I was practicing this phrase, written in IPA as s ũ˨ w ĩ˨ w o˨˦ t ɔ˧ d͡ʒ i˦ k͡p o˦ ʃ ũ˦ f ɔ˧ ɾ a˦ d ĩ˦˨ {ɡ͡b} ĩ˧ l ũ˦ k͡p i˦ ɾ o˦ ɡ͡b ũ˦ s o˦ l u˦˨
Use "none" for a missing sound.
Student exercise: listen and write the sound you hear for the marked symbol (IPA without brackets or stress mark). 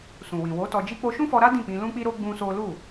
k͡p